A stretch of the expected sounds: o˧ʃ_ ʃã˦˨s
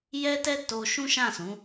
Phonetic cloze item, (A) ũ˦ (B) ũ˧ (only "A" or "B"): A